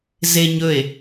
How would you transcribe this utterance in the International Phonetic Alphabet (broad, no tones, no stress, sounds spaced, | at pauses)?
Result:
z e ɲ ɵ e̯